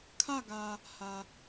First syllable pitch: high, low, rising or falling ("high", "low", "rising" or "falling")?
falling